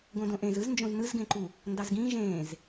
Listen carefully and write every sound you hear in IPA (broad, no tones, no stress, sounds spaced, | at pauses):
ɡ õ d õ ʔ ẽ z ɯ z n d͡ʒ õ z n ɯ z ɡ ẽ ǃ u | n d ɑ z ɡ ĩː ʒ ẽː z